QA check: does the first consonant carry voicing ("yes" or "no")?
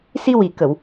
no